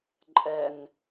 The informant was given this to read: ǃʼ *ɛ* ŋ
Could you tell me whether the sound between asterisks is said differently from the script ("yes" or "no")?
no